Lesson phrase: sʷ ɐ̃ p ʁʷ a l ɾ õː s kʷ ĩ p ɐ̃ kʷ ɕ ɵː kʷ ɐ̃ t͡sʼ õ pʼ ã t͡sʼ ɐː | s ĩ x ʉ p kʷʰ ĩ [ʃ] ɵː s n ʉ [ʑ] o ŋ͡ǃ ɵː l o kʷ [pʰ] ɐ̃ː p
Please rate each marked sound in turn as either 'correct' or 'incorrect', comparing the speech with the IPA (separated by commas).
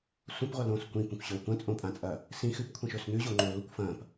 correct, correct, incorrect